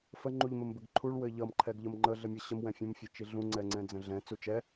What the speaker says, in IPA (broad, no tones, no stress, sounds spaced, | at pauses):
f ə ŋ͡ǃ u ʎ m ɘ m b ɘ ɡ ǃʰ u ɭ w ɘ ʎ ʌ m ǃʰ ɛ ɡ ʎ ə m ŋ͡ǃ ə ɮ ɘ mʲ ʌ ɕ ə m w ɛ̃ fʲ ə̃ m fʲ ɘ t͡ʃ i ɮ ũ ŋ͡ǀ ɛ ŋ͡ǀ ɛ̃ d͡z ə̃ ɮ ɛ̃ t͡s u t͡ʃ ɛ